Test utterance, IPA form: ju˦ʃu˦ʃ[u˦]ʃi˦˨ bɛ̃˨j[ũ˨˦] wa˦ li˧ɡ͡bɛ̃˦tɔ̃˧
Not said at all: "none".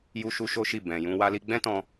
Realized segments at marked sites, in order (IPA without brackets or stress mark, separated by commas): o˦, ũ˧